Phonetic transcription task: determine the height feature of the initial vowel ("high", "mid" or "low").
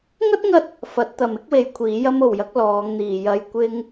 low